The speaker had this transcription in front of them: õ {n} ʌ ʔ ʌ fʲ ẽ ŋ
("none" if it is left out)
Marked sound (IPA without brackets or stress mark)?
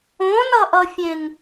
n